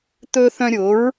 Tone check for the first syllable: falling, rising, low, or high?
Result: high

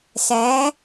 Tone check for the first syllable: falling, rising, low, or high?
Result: rising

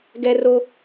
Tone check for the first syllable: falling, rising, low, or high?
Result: high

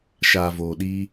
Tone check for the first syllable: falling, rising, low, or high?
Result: low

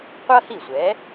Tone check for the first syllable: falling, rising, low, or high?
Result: high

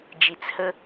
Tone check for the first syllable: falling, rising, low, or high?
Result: low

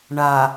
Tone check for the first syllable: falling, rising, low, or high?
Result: low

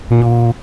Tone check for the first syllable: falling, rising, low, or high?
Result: low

